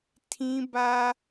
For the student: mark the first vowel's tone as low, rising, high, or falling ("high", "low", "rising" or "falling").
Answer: high